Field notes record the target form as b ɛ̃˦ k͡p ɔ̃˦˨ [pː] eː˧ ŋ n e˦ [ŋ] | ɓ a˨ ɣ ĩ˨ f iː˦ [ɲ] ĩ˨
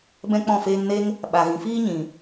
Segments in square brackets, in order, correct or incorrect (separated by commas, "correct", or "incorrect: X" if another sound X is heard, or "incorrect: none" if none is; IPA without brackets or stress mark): incorrect: f, correct, correct